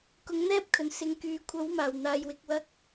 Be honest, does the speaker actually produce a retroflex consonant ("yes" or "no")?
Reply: no